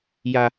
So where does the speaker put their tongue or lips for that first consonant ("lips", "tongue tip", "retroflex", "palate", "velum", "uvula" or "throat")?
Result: palate